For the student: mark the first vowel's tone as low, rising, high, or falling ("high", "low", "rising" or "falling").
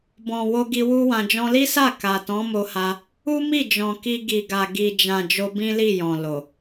low